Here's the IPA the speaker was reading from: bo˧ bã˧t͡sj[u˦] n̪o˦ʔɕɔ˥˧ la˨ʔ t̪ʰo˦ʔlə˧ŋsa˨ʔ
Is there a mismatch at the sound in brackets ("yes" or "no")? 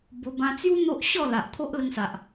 no